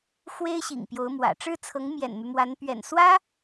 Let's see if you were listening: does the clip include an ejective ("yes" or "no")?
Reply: no